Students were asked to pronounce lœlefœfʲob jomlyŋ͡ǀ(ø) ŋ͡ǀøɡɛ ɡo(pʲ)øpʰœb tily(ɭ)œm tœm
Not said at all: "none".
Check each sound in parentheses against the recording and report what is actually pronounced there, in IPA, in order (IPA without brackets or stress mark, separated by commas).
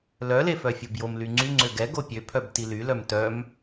y, pʲ, l